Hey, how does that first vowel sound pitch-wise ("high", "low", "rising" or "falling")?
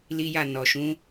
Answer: high